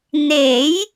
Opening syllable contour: rising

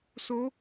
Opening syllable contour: rising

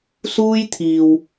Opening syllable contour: high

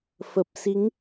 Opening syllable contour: low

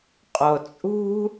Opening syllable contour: low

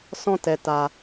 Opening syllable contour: high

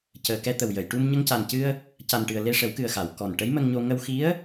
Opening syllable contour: low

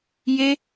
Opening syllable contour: high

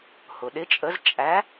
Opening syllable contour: low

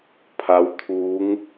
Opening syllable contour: rising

